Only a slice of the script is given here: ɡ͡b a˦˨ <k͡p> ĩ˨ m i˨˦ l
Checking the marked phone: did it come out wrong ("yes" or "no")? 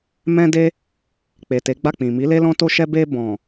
no